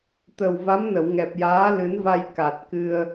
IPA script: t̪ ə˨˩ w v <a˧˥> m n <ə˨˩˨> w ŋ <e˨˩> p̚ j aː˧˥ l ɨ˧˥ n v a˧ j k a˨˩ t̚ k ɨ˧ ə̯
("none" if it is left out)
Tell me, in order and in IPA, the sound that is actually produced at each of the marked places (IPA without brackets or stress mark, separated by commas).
a˧˥, ə˨˩˨, ɛ˨˩